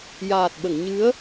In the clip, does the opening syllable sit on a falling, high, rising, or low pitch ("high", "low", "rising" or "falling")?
low